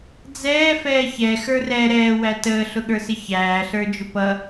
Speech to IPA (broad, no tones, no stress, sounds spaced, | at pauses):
d͡z ɛː f ɛː ç ɛ x ə˞ r ɛ ɾ ɛː w æ t əː ɬ ʊ ɠ ə˞ s ɪ ç æː ɬ ə˞ d͡ʒ ʊ p ʌ